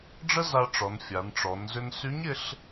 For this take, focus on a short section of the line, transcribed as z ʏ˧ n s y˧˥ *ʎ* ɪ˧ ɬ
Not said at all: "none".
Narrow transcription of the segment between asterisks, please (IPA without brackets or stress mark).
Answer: ɲ